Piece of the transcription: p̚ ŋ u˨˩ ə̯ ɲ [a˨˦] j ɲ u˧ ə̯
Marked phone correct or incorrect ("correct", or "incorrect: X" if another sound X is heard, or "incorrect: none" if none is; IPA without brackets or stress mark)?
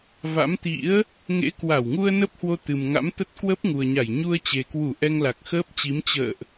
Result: incorrect: a˧˩